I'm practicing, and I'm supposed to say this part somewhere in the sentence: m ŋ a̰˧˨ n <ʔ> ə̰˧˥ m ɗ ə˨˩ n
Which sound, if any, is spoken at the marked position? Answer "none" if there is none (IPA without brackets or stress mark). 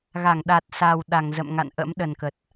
ʔ